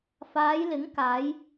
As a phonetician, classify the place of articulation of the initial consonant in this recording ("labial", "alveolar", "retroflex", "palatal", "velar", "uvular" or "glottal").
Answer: labial